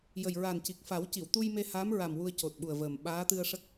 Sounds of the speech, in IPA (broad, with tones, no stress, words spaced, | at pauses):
jə˨˩jɹa˨˩nci˨˩k̚ fa˨˩˦w ci˨˩˨wt̪u˧jme˧ ha˧˥mɹa˨˩m wu˧ə̯co˨˩t̚ɓu˨˩ə̯vəː˨˩m ɓaː˧˥t̪ɨ˧ə̯ʂə˦˥k̚